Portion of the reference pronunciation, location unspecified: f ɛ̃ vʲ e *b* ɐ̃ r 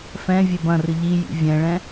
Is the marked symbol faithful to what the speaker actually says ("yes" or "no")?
yes